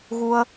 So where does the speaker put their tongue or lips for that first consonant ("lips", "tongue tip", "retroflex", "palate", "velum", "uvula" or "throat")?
velum